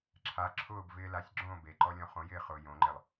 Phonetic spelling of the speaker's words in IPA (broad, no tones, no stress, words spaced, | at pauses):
ǁʰa ǁʰʊːbvɪː lasʲ ɡ͡ǁõːbeǃɔ lʲɔ̃χõjɪː χʊːjõŋ͡ǃɪlˠ